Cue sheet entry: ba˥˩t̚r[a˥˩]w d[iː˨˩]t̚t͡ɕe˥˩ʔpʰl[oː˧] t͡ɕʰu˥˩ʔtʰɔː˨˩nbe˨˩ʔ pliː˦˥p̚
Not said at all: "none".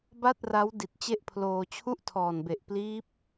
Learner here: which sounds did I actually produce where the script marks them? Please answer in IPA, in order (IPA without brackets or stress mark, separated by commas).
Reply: a˦˥, i˨˩, oː˧